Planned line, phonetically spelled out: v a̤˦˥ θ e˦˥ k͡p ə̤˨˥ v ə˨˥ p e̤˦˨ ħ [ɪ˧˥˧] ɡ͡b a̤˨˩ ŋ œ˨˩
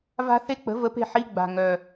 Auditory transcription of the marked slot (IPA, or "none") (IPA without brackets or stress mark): i˧˥˧